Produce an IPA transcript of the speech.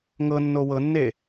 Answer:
ŋ ɤ nː o w ɤ nː e

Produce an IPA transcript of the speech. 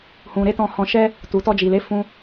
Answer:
h ũ˨ ɾ e˨˦ t ɔ̃˧ h ɔ̃˧ ʃ ɛ˦ | t u˨ t ɔ˧ d͡ʒ i˨ l e˨˦ f ũ˧

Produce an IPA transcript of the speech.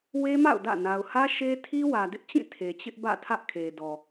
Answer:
w e˦ m a̰˦˨ ʊ̯ d ä̰˦˨ n a˨ ʊ̯ h ä˦ ʃ e˦ tʰ i˦ w ä˨ d ɪ˦ ʔ t͡ɕ ĩ˦˨ tʰ e˨ t͡ɕ ɪ˦ ʔ b ä̰˦˨ tʰ ä˦ ʔ kʰ e˨ d ɔ˨

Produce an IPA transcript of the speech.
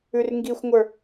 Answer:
ʉ r ŋ ɡ i xʷ ŋʷ ə˞

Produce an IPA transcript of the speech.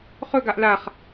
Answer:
χ ɵ ɡ a ʔ l a χ

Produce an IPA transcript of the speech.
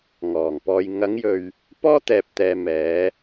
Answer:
ŋ ɔː˨˩ ŋ p ɔː˧ j ŋ ɐ˨˧ ŋ j ɵ˨ ɥ | p ɔː˥ t̪ ɛː˨ p̚ t̪ ɛː˨ m ɛː˨˧

